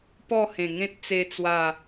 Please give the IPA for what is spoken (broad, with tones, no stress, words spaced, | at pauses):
pɔ˥˧hẽ˨˩ŋẽ˦t̚ t͡se˧ t͡swa˥˧